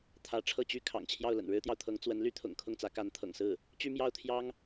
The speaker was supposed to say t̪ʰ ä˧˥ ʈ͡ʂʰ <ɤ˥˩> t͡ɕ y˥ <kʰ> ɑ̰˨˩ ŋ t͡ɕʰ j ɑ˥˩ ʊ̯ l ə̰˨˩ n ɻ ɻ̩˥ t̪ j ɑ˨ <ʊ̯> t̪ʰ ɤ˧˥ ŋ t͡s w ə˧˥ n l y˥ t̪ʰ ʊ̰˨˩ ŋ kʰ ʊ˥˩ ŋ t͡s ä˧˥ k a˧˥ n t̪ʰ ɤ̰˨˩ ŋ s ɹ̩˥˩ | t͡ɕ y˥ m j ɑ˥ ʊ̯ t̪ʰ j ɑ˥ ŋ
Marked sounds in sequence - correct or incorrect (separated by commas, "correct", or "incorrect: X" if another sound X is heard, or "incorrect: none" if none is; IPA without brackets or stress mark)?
correct, correct, correct